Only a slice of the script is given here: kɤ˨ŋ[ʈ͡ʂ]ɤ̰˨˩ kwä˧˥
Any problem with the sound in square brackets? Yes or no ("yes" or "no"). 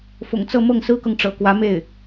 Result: no